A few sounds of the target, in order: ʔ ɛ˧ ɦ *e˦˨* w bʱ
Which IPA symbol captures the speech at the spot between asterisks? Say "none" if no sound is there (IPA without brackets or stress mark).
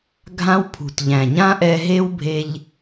e˦